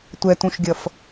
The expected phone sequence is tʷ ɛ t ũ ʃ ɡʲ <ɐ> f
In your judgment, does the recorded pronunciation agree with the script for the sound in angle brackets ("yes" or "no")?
yes